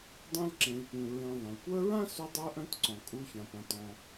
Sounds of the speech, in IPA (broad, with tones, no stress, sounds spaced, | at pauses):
dˤ ã˥ l ǁ ẽ˨ l p ũ˨ ɹ ẽ˨ ðˤ ẽ˩ l kʷ œ˦ ɹ ã˥ s u˦ dˤ œ˦ ʔ œ̃˦ t ǀ ɔ̃˩ kʼ u˨ ç ã˩ p ã˩ t ɔ̃˩